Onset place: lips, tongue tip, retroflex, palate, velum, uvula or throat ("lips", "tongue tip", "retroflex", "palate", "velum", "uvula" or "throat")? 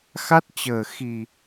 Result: velum